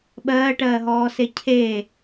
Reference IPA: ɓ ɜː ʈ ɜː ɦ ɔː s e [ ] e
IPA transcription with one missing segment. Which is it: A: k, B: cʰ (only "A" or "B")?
B